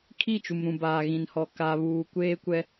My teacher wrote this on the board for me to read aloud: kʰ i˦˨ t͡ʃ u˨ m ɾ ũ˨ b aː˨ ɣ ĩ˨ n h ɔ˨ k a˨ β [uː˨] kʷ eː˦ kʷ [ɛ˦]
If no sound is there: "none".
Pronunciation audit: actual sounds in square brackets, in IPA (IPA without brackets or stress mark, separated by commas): uː˨, ɛ˦